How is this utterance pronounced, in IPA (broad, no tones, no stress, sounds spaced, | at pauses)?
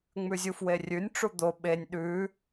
ŋ͡m ʉ zʲ u f w e rʲ ʉ nʲ ʈ͡ʂ u d̪ o ɓ e nʲ ɗ ʉ